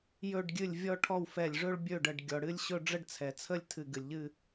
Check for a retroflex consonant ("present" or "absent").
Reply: present